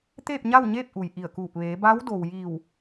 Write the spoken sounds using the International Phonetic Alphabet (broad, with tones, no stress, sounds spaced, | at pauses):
t̪ eː˥˨ p̚ ɲ a˥˨ w ɲ eː˥˨ p̚ ʔ u˩ j ʔ i˧˩ ə̯ k uː˧˩ p̚ ʋ eː˩˧ b a˧˥ w d o˩ w j iː˧˩ w